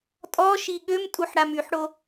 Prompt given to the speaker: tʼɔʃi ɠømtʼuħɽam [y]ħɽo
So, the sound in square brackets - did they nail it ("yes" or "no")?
yes